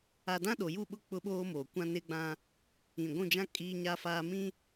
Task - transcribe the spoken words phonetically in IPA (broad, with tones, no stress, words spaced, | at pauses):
a˦ dã˦ɗo˨ju˦˨ɓʊ˦ k͡pʊ˦ɓoː˦ moː˨ kʷã˦nɪ˦ɡ͡bã˦ | ĩ˨ɡʷũ˦˨d͡ʒã˦ kʼiː˦ɲa˦faː˦ mĩ˦